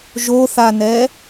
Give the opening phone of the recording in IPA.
ʒ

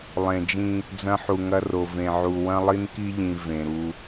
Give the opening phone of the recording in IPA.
lˠ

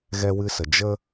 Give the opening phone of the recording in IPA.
ɣ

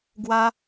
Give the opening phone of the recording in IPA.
ɡ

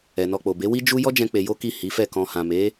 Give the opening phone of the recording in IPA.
ɛ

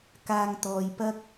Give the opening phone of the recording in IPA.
k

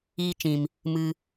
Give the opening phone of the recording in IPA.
iː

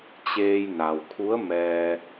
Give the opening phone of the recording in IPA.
t͡ɕ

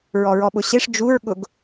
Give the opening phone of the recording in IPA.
ɹ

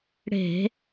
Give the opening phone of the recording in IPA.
ɽ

